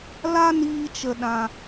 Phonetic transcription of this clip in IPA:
l a˦ n iː˧ t͡ʃ ə˨ ɗ ã˨

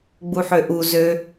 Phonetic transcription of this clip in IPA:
ɡ͡b u ħ ø ʔ u z ø

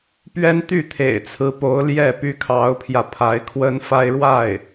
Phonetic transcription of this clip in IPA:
p ɥ ɛ˥ n t̪ y˥˩ t̪ʰ ḛ˨˩ ɪ̯ t͡sʰ ɹ̩˧˥ p o˧˥ ʊ̯ l j ɛ˥˩ p y˥ kʰ ɑ˧˥ ʊ̯ pʰ j ä˧ pʰ a˧˥ ɪ̯ kʰ w ə˥ n f a˥ ɪ̯ ɻ w a˥˩ ɪ̯

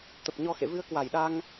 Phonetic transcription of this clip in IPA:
t̪ ə˨˩ p̚ ɲ ɔ˧ x ḛ˧˨ v ɨ˧ ə̯ k w a˨˩ j ɗ a˧ ŋ

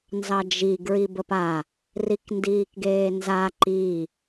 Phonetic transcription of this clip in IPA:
n z ɑ d͡ʒ i ɡ ɹ i b ə p a | r i k n d iː k ɡ eː n z a ǃ i

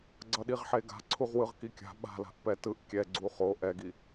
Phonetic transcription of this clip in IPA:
ɡ͡ǀ ʌ ɗ i ʁ ħ e ɡ a̤ ǀʰ u ʁ w ɯ ʁ k i kʲ a̤ ɓ a̤ l a̤ ʔ p ɛ t ɯ ʔ kʲ ɛ ɡ͡ǀ u χ o ʔ ɛ ɡ i

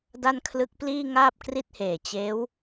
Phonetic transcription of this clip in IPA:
d a˧ n kʰ l ɯ˦˥ k̚ p l iː˥˩ ŋ aː˥˩ p̚ k r i˥˩ t̚ h eː˨˩ t͡ɕ eː˦˥ w

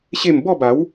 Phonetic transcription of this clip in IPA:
ɕ e˥˧ m b ɔ˥˧ b a˨˦ w

